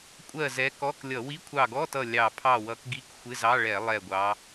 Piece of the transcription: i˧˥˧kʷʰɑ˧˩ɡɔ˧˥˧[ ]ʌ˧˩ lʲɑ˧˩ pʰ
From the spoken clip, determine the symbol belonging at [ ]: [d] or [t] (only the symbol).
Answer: t